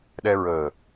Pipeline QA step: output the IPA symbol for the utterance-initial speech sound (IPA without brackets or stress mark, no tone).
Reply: ɗ